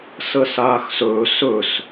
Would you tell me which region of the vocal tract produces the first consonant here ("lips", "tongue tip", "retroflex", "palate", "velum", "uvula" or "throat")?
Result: tongue tip